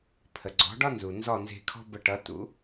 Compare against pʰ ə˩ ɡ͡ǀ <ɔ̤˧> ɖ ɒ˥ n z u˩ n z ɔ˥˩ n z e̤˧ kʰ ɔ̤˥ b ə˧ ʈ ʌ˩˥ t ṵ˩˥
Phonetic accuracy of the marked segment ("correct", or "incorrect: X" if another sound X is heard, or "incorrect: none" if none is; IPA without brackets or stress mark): incorrect: ɔ̤˩˥